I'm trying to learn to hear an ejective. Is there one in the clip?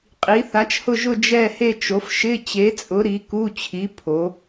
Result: yes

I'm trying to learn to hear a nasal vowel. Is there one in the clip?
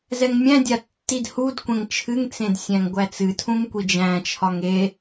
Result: yes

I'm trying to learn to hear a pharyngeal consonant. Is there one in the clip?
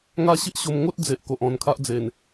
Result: no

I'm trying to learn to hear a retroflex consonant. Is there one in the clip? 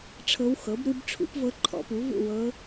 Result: yes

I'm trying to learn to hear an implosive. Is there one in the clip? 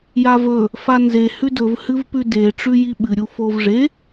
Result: yes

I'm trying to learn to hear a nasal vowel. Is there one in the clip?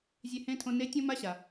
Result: yes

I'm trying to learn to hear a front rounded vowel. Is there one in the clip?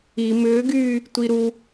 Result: yes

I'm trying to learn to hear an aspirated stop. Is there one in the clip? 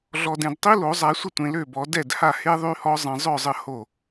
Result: no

